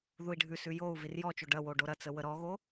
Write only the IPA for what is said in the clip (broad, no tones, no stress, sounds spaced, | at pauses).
ð u i̯ ɖʱ ʉ s ʉ j o u̯ v i r j ɔ t͡ʃ o ɖ ɐ w o ɖ o ɾ ɐ t͡s ə w ə ɾ ɔ ɣ o